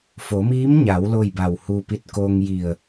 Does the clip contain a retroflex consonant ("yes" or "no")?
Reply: no